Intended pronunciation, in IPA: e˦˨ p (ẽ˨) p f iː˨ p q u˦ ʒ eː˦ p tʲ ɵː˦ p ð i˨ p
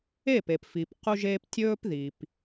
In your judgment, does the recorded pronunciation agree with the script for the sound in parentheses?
no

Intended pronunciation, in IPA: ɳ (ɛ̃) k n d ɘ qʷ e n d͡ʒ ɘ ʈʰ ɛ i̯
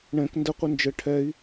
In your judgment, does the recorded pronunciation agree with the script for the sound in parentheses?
yes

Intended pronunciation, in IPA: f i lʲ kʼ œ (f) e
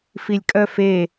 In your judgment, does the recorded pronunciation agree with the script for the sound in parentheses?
yes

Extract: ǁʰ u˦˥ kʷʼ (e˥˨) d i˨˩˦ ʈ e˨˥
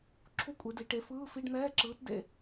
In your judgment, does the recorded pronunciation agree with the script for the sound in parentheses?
no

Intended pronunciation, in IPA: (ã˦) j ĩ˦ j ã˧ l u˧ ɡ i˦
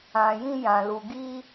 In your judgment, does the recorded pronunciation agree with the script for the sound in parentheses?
no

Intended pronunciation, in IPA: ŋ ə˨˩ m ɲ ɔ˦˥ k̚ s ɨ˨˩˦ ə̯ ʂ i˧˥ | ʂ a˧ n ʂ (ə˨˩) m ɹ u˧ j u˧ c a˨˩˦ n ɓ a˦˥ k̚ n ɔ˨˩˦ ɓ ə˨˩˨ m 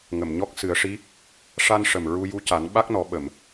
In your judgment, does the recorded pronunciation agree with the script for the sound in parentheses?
yes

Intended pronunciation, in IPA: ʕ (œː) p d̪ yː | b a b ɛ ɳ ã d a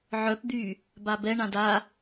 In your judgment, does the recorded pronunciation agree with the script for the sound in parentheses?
no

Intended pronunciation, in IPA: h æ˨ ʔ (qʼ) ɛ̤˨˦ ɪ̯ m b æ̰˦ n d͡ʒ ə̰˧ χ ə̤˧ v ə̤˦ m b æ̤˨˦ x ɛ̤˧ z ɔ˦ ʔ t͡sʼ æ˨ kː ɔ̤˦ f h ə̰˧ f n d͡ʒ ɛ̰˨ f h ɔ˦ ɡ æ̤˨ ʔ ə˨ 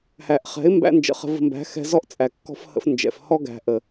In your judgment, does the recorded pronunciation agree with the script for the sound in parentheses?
no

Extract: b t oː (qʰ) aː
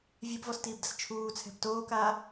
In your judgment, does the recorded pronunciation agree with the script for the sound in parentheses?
no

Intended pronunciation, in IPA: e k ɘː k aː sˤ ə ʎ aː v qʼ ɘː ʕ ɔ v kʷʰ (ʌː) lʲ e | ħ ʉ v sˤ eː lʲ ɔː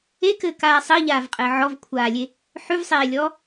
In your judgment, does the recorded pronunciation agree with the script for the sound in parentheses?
no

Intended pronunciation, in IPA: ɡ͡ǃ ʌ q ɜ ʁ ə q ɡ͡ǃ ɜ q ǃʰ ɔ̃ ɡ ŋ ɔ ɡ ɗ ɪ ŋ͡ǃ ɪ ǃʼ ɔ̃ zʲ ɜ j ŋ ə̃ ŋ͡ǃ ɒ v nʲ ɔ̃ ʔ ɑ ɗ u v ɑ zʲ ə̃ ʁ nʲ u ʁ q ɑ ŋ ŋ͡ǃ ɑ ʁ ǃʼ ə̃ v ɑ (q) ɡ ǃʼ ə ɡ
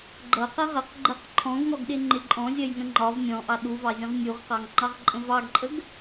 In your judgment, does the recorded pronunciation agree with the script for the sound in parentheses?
no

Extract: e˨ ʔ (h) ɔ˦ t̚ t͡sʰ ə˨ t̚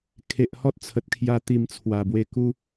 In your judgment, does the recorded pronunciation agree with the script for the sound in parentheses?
yes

